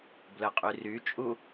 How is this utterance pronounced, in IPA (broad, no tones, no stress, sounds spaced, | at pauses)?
b l ə qʼ y r y t͡ʃʼ u